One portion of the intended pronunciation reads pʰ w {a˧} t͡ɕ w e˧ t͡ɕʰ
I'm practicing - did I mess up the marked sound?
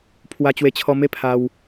no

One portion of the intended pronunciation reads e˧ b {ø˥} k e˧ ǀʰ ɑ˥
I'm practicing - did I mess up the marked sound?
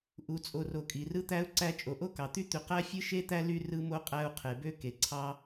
no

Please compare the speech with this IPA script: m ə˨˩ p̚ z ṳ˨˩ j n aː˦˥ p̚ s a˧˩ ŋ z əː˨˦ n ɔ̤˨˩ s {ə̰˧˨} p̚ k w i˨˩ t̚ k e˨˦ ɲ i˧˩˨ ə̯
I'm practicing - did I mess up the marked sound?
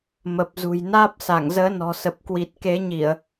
yes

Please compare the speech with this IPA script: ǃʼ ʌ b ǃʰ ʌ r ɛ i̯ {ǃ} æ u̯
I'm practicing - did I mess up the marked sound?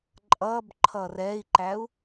no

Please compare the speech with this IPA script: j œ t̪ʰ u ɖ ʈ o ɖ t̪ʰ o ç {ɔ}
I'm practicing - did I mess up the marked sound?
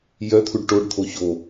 yes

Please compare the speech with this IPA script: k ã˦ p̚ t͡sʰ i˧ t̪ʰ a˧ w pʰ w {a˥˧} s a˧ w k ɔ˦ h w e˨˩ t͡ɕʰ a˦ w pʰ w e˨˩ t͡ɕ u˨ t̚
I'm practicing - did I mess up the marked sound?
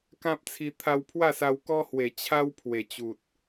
no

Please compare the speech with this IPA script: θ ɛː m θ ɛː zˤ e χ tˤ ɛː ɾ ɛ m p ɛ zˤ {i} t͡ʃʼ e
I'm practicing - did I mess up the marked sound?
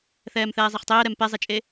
yes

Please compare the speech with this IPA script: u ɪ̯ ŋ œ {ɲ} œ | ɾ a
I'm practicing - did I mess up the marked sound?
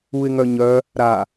no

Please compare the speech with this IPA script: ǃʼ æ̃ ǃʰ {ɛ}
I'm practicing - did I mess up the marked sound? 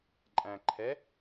no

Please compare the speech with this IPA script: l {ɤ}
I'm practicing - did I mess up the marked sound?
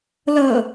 no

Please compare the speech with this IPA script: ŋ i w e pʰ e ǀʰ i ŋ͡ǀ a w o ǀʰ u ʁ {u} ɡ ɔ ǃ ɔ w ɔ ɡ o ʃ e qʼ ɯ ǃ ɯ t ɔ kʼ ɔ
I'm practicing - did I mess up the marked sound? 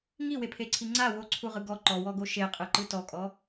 yes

